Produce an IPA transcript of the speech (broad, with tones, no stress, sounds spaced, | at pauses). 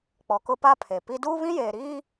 k͡p ɔ˨ k ʊ˦ p a˦ pʰ e˨ p i˦ d uː˦ β ĩ˦ j eː˨ ɾ iː˦